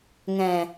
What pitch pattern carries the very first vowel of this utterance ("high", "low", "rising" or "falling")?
low